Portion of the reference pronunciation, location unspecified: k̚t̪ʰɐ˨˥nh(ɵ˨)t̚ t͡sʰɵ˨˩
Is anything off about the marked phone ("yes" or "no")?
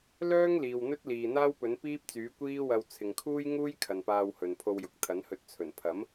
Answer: yes